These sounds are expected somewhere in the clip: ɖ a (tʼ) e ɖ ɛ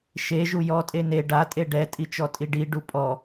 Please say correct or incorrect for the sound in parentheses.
correct